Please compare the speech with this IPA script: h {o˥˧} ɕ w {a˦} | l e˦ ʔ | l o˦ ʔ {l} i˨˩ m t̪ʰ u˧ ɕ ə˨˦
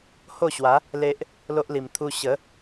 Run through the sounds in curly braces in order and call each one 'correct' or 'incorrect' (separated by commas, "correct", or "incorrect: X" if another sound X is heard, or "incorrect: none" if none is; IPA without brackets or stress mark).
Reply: correct, incorrect: a˨˦, correct